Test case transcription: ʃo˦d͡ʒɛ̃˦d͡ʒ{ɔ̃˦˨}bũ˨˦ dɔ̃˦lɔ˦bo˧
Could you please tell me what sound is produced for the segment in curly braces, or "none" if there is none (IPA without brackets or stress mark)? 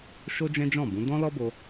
ɔ̃˦˨